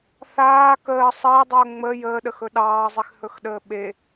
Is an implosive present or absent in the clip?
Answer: present